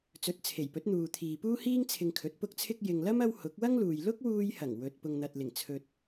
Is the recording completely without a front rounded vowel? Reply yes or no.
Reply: yes